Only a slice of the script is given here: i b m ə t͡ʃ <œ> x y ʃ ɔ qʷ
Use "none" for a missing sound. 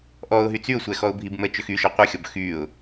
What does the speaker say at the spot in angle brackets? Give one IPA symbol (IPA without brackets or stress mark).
ø